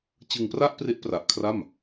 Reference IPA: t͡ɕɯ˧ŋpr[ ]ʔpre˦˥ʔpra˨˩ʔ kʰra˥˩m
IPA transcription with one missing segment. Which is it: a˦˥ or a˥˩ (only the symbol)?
a˥˩